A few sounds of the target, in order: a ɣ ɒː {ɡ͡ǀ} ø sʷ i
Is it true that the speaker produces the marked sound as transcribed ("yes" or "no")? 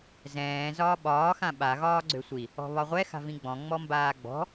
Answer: yes